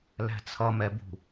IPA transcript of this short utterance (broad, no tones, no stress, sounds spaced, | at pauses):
l æ̤ t͡sʰ ʌ m ɛ b ṳ